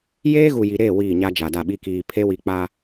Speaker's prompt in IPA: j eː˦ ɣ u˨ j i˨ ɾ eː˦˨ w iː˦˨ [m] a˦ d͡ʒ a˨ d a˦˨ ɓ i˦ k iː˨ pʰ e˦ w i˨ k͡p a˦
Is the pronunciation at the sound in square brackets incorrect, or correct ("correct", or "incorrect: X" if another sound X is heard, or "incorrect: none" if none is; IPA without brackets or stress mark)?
incorrect: ɲ